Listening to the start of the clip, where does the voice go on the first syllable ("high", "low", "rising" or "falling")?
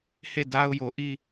falling